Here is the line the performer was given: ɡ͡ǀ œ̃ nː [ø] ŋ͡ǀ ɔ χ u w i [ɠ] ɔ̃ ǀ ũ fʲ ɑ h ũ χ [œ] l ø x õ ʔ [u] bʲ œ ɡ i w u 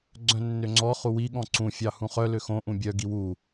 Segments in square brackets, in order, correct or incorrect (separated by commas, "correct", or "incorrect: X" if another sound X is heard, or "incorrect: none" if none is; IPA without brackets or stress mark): correct, correct, correct, incorrect: ũ